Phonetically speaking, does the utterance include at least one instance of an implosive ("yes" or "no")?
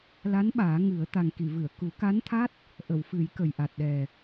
yes